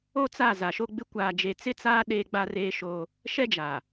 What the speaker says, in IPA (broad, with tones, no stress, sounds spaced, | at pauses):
o˦ t͡s a˦˨ z a˨ ʃ o˦ ɡ͡b ɪ˦ kʷ aː˨ d͡ʒ e˨ t͡s ɪ˦ t͡s aː˦ ɗ eː˦ ɡ͡b a˦ r eː˦ ʃ oː˦ | ʃ ɛ˦ d͡ʒ aː˨